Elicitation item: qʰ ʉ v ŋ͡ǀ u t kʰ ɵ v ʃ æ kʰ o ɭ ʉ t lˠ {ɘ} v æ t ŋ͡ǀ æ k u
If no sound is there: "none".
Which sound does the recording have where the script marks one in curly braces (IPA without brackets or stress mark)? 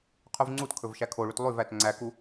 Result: ʉ